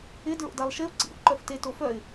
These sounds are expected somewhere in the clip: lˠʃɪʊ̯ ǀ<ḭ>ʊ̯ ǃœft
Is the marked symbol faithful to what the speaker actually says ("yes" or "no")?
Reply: yes